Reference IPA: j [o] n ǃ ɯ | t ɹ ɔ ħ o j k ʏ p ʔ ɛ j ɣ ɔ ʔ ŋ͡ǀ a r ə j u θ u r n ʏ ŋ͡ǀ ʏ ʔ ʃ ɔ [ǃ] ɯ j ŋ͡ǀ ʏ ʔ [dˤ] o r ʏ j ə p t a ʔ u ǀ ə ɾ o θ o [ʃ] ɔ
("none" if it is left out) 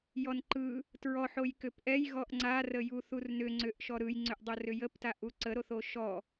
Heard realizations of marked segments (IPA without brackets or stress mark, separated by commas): ɔ, ɾ, dˤ, ʃ